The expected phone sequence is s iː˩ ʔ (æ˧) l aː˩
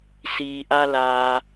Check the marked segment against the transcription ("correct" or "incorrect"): incorrect